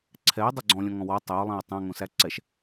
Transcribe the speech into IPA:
ǀʰ ɛ ɪ̯ dˤ œ ɡ͡ǀ ɔ̃ lʲ ɔ̃ ŋ ɔ̃ w ɔ tˤ ɛ ʊ̯ lˠ ɛ̃ ʊ̯ tˤ æ̃ ŋ õ s æ ǀ ɛ ʃ

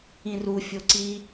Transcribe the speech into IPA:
ĩ r u fʲ o ǀ i

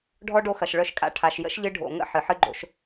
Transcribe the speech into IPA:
ɖʱ ɔ˦ ɖ o˧ x ɐ˨ ʃ ɭ œ˧ ʃ kʼ a̰˧ ʈʰ a˨ ʃ j ə̰˦ ʃ ʎ ɨ˧ ɖʱ o̰˨ ŋ ə̰˧ ħ ɨ˨ ħ ɨ˦ ɡ͡ǃ o̰˧ ʃ

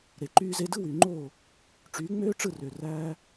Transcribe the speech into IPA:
ɾ e˩ ǃ yː˧ z e˧ d ɯ˥ w y˩ ŋ͡ǃ oː˥˩ | ʈ͡ʂ yː˩˥ ŋ͡m øː˥ ʈ͡ʂ ɯ˥˩ r ø˩ r æː˧

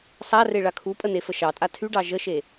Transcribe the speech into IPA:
sˤ a r e ɭ a kʰ u pʼ ə n e f ə ʃ ɑ tʼ a tʰ y ɖ ɑ ʒ ə ʃ e

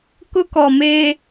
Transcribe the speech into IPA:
k ʊ˦ k ɔ˨ m eː˦

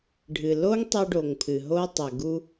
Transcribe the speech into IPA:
ɖʱ ɨ˨ l o˦ ŋ tˤ ɛ˧ ɖ o˨ ŋ pʰ ɨ˨ ɦ o˦ tˤ ɛ˨ ɡ u˦

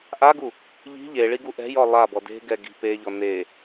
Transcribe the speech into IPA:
ʔ a ɡ u | ʎ i̤ ʎ e ɭ i ɡ u ʔ ɛ̤ j ɔ lˠ a b ɔ d e̤ ɡ ɛ ɡ i̤ p e ʎ ɔ n e

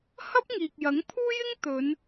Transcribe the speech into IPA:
h ɐ˥ p̚ ŋ iː˨ k̚ j ɐ˨˥ ŋ pʰ uː˥ j ɪ˥ ŋ t̪ ɵ˨˧ n

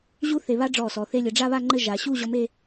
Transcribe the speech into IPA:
ʑ u˥ θ e˧ β a˥ ɖ͡ʐ ɔ˧˩ s ɔ˩˧ θ e˧ lʲ ɘ˩˧ ɖ͡ʐ a˥˧ β a˥˧ ŋ͡ǃ ɘ˥˧ ʒ a˩˧ ɕ u˥˧ ʑ ɔ˧ m e˥˧

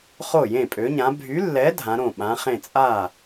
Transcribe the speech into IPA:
χ o˥˩ j ẽ˥˩ pʼ ø˨˥ ɲ ã˨˥ bʱ y˨˥ lː ɛ˨˥ dʱ ã˨˥ ɾ õ˥˩ ɓ ã˨˥ χ ẽ˥˩ t͡sʼ a˥˩

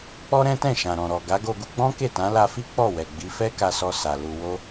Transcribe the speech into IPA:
k͡p ɔ˦ ɾ ɛ̃˦ t ɛ̃˦˨ ʃ ã˨ ɾ ɔ̃˨ ɾ ɔ˨ ɡ a˨˦ ɡ o˧ ɡ u˧ ɡ͡b ɔ̃˦ k e˦˨ t ã˨˦ l a˧ f i˦ k͡p ɔ˦˨ w ɛ˨ ɡ͡b i˨˦ f ɛ˦ k a˧ s ɔ˧ s a˨ l u˧ w o˦

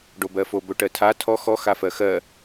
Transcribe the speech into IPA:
ɖ o b ɜ f o b ɵ ʈ ɜ tʰ a tʰ ɔ x ɔ x a f ɜ x ɜ

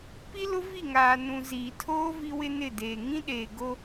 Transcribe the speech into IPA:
p i˦ l ʊ˦ v i˦˨ ŋ aː˨ n ũ˨ z iː˨ tʰ oː˦ v i˦ w ɪ˦ n ɪ˦˨ d eː˨ ŋ ĩ˦ ɗ eː˨ ɡ o˦

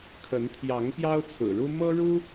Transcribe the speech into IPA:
kʰ ə˨˦ n t̪ʰ j ɑ˨˦ ŋ p j ɑ˦ ʊ̯ t͡sʰ ɹ̩˨˩ ɻ u˦ m ɤ˦ ɻ u˦

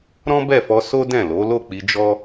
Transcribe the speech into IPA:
ɾ ɔ̃˦ b ɛ˦˨ f ɔ˧ s o˦ d ɛ̃˦˨ l o˨˦ l o˦˨ k͡p i˧ d͡ʒ ɔ˦

